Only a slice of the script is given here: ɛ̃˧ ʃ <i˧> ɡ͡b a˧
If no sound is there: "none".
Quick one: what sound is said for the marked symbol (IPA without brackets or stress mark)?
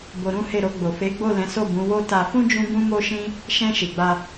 i˨